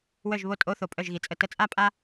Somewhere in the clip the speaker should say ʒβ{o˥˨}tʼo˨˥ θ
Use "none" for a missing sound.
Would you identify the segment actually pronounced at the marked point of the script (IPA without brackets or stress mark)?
o˧˩